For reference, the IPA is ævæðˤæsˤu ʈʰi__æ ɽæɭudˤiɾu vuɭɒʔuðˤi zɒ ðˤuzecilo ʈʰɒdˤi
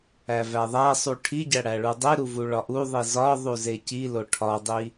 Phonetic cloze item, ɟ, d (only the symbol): ɟ